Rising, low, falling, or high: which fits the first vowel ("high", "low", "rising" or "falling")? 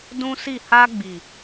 high